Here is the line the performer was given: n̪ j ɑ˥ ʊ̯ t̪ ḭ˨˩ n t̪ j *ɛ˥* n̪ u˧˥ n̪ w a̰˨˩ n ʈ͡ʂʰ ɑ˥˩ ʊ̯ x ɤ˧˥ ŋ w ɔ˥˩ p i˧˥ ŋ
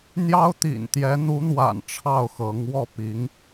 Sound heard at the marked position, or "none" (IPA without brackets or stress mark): ɛ˧˥